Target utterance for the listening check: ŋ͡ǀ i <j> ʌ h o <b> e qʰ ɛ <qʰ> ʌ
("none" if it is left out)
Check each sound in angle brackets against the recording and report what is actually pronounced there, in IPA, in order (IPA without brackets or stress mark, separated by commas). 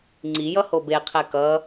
j, b, k